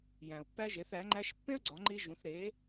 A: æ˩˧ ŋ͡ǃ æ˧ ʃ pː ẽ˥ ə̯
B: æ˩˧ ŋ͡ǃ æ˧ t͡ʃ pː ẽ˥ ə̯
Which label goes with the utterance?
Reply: A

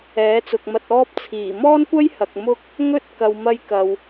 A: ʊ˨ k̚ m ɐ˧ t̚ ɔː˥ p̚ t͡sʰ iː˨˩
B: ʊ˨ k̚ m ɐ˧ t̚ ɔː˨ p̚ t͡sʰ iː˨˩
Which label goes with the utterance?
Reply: A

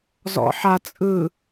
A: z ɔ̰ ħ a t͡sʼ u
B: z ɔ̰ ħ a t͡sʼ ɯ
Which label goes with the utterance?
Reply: B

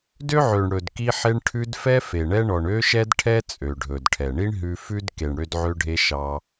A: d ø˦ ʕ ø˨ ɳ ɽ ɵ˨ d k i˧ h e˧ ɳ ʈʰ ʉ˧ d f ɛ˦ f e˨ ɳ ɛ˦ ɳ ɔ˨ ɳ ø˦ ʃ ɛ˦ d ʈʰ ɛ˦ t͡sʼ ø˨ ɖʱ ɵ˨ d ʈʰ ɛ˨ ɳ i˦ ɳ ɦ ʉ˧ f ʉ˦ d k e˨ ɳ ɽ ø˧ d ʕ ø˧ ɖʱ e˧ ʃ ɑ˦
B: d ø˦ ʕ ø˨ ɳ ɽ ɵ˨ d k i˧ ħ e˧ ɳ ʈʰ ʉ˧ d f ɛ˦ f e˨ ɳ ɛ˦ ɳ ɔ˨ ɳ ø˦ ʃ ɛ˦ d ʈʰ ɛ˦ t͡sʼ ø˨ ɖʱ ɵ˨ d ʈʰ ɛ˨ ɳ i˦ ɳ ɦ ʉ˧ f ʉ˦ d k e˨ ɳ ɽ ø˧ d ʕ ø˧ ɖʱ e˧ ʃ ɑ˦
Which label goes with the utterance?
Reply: B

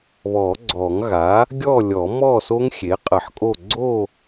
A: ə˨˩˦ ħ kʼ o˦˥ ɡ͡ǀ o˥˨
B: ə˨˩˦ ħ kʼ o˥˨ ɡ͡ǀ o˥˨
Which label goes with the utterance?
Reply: B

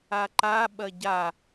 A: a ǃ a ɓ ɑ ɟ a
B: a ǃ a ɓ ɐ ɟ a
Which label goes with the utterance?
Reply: B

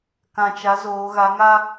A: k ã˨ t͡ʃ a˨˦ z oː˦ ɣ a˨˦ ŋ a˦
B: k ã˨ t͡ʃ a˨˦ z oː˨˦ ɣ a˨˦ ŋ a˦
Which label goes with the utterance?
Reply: B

